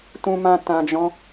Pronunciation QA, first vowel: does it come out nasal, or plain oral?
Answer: nasal